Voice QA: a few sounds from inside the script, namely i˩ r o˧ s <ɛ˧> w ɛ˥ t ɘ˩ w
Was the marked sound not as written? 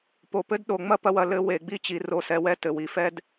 no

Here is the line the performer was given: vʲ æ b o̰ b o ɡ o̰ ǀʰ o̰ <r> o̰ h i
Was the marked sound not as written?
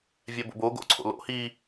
yes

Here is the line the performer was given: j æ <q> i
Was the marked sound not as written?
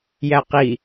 no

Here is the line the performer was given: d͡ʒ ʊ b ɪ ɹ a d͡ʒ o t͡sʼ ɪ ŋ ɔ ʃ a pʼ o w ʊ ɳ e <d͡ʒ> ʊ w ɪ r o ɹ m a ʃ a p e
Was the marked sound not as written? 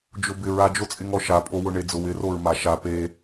yes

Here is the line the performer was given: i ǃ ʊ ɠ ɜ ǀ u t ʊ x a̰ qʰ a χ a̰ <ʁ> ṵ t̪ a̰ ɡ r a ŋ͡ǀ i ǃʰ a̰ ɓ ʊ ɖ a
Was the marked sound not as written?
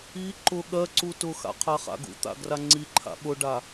yes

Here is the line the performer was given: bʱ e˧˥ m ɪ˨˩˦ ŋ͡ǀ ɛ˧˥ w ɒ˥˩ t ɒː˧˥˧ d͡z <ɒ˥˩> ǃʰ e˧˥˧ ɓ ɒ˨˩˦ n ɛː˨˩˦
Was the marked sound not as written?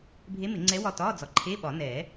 yes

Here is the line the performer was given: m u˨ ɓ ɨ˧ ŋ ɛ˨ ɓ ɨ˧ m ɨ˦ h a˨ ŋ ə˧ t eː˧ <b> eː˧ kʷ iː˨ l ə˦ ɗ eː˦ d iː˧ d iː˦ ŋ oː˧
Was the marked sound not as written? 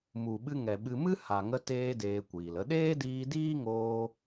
yes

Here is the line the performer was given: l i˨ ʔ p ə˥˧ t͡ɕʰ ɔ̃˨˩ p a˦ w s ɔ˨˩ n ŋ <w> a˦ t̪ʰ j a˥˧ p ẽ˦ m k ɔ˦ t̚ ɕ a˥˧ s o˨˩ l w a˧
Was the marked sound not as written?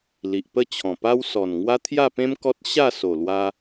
no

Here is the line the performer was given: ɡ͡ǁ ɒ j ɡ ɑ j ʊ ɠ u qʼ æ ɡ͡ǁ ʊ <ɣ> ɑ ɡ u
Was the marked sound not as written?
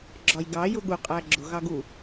no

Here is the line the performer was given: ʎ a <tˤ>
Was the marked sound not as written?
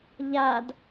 yes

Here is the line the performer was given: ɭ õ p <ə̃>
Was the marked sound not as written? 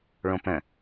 no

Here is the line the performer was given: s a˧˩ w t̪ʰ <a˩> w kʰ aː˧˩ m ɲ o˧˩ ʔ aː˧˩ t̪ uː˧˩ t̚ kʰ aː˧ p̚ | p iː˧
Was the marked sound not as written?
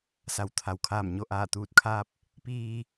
no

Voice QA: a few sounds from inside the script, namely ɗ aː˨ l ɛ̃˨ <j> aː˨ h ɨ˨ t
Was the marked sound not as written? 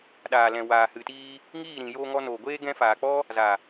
yes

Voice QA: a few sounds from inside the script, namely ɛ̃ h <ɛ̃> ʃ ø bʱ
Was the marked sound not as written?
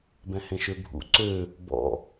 yes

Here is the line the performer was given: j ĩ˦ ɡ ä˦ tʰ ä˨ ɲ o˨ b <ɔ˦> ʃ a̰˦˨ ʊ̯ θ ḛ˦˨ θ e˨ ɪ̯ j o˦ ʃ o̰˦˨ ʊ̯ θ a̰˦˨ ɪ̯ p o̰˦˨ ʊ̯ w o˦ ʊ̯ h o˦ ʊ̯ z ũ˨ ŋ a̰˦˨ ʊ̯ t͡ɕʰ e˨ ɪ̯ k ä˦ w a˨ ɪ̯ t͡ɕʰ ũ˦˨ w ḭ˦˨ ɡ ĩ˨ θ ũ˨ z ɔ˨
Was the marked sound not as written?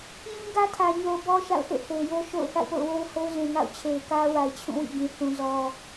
no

